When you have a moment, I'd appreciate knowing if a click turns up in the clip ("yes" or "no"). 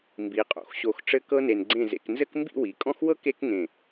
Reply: yes